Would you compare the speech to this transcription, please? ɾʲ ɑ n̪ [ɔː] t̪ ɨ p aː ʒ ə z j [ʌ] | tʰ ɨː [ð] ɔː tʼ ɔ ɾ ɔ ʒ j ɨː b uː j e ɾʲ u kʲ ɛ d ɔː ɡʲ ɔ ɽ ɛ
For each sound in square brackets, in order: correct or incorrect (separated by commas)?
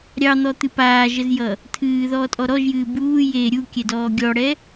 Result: incorrect, correct, correct